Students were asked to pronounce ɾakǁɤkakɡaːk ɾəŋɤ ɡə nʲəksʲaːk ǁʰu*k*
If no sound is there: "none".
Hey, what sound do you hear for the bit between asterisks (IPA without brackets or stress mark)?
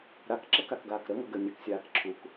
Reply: k